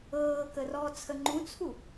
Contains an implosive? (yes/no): no